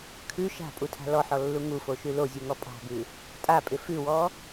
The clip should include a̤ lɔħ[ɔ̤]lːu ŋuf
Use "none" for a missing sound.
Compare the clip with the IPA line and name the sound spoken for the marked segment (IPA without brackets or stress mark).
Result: ɔ